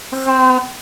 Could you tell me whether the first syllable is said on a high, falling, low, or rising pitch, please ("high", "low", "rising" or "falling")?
high